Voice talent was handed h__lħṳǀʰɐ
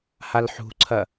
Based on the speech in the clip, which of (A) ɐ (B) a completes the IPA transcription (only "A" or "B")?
B